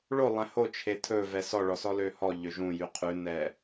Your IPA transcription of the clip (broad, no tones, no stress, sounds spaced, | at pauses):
ɭ o lˠ æ̃ h o t͡ʃʰ e tʰ ɵ v ɛ s ɔ ɭ ɔ s ɔ l ø h ɔ ʎ ø ʒ ũ j y qʰ ʉ n ɛ